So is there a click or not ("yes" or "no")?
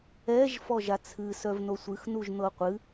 no